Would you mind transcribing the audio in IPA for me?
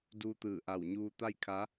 d uː˧ t̪ ɯː˧˩ ʔ a˧˩ w ɲ uː˧ t̪ a˥˨ j kʰ a˧˥

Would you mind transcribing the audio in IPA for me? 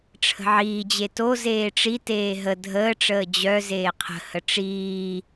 ʈ͡ʂʰ ə̤ ʕ iː d͡ʑ e t o z eː ʈ͡ʂ i t eː ɦ ə dʱ əː ʈ͡ʂ əː d͡ʑ œ z eː qʰ ə̤ h ə ʈ͡ʂ iː

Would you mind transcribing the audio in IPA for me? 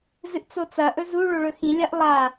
z ɨ ʔ t͡s o t͡s ɐ ʔ ɵ z u ɭ o ɭ ɵ x ĩ lʲ a ʔ lˠ a

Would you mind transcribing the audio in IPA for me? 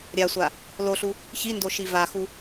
ɾʲ a sʷ a | l o ɬ u | ç i n d o ʃ i v a x u

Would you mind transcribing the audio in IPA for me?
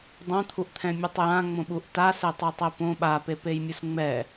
dˤ õ t̪ʰ u ʔ t̪ʰ ɛ̃ mʲ o tˤ j ã ŋ͡m õ ɓ u ʔ t a s e tˤ u tˤ e p õ ɓ a p e p e j mʲ u s ŋ͡m ɛ

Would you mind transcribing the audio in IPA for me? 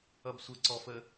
ʌ b sʷ ə ǀ ɔ f ə

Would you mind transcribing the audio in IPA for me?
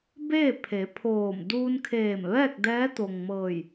b eː˥˨ pʰ e˩˧ pʰ oː˧˩ m d uː˧ n kʰ eː˧˩ m ʋ ɛː˥˨ k̚ d ɛː˧˥ t̪ o˩ ŋ m ɤː˧˩ j

